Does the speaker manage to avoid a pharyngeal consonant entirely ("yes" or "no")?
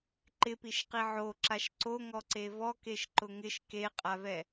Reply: no